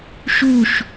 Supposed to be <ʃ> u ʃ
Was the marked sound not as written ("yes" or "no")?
no